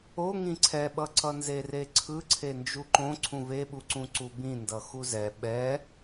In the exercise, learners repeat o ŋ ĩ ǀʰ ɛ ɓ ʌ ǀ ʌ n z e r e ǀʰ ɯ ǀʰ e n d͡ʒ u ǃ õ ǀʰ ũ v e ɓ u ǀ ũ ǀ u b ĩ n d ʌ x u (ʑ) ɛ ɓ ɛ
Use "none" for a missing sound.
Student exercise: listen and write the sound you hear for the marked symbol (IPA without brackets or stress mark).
z